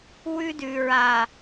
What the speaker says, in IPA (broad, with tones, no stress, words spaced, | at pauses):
wʉ˦dʉ˨ɹa˨